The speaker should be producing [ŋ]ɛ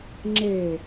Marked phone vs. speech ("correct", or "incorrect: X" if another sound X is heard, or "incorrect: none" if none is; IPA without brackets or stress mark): incorrect: ŋ͡ǁ